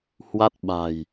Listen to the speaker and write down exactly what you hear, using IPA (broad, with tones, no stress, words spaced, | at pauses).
hwa˦˥t̚ ɓa̤˨˩j